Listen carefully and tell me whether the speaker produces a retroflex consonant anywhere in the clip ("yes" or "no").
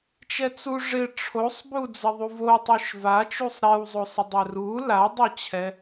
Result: yes